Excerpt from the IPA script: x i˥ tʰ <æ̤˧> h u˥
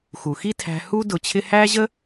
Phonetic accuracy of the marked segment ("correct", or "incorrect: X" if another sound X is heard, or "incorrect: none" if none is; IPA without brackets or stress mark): correct